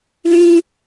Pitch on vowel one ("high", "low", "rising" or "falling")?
high